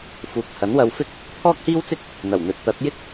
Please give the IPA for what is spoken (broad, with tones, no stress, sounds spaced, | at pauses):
f uː˨˥ k̚ h ɐ˨˥ n w ɐ˧ w f ɪ˥ k̚ | t̪ʰ ɔː˥ k̚ h iː˥ w t͡s ɪ˥ k̚ | n̪ ɐ˨˩ w n̪ ɵ˨ t̚ t̪ ɐ˨˥ t̚ j ɪ˥ k̚